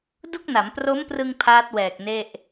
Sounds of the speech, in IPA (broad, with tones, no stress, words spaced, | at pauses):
du˥˩k̚na˩˦m pro˦˥mprɯ˧ŋ pʰaː˦˥t̚wɛː˨˩k̚ ne˥˩ʔ